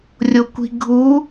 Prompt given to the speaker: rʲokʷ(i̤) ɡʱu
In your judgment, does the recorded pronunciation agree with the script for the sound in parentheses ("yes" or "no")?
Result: yes